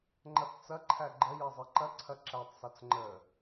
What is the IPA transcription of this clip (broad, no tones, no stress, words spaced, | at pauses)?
ŋ͡ǃɐθt͡sɐ ǃʰæɡ͡ǃə jezˤeǃɐ ǀʰɐǁætˤ sɒt͡sŋ͡ǃə